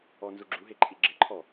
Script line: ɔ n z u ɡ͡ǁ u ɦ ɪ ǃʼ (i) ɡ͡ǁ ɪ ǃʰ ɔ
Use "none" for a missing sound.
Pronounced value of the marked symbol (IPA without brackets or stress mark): i